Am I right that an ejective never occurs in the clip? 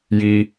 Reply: yes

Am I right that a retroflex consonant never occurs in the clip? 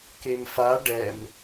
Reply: no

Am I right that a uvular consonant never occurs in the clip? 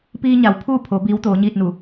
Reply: yes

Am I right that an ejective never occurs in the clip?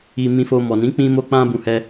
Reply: yes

